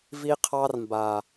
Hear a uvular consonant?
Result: yes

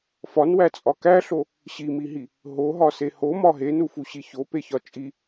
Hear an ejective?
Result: yes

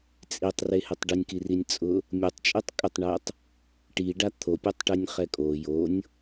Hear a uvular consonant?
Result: yes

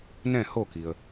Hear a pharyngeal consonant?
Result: no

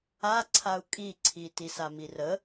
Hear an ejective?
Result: yes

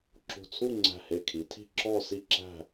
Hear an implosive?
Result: no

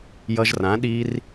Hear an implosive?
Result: yes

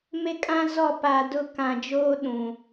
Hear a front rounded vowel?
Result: no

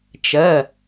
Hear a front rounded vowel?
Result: no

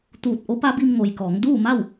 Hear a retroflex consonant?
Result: no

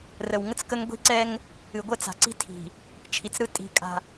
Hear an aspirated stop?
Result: yes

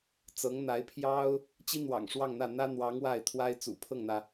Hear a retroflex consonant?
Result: yes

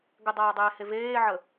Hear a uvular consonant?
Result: no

